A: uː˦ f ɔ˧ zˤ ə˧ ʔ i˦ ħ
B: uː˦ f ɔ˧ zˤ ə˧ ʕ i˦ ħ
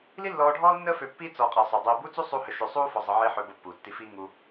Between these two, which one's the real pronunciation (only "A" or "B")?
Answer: B